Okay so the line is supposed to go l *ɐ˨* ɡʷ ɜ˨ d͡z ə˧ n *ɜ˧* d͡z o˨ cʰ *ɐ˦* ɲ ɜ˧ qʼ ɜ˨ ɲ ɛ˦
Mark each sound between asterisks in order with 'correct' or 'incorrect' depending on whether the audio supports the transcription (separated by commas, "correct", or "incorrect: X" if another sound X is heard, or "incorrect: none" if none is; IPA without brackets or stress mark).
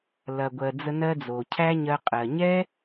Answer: correct, correct, incorrect: æ˦